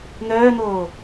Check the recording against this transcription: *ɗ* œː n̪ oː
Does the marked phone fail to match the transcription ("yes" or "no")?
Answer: yes